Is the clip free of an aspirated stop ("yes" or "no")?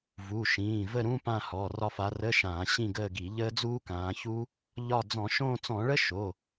yes